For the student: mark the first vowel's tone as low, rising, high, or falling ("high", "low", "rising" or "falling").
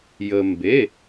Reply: low